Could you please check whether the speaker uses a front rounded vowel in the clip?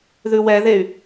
yes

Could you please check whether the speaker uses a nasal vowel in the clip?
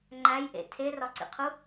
no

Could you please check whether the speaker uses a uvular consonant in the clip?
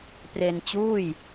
no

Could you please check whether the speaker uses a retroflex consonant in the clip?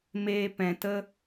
no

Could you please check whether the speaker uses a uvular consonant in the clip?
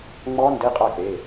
yes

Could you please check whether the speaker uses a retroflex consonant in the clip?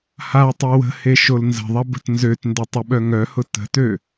no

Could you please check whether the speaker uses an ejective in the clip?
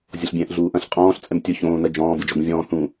yes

